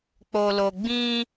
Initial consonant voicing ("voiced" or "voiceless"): voiceless